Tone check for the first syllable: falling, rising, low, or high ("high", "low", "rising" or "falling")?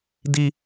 high